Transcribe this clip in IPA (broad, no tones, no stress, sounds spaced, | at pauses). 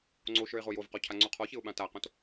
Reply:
ŋ͡ǀ o ʃ ə˞ ɪ̯ ʁ o j o v q ɔ cʰ a ŋ͡ǀ u qʰ ɔ ç ɪ ʊ̯ ɓ ã t a q õ t